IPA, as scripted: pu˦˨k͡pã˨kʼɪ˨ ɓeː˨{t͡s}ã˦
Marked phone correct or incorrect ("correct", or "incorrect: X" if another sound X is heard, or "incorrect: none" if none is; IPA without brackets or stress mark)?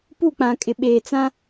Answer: correct